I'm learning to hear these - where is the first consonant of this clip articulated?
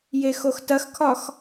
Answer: palate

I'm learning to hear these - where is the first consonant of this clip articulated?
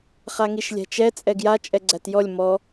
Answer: uvula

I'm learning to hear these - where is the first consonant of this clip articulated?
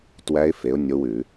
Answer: tongue tip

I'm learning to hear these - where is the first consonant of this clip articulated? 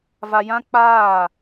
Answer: lips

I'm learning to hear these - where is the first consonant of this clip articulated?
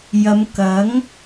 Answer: palate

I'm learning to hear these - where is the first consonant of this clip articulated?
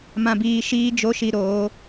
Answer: lips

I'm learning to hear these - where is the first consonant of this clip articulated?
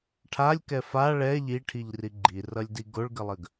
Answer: retroflex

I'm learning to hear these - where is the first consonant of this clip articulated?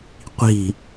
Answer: uvula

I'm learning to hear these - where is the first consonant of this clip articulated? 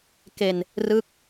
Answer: velum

